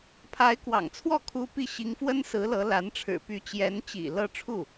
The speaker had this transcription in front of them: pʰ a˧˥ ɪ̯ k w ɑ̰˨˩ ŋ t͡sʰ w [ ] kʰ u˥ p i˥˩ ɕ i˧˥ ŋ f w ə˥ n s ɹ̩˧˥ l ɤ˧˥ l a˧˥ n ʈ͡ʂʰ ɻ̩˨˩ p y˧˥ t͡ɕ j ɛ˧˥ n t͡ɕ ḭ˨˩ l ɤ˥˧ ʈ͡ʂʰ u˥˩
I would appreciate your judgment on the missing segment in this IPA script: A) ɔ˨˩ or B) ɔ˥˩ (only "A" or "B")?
B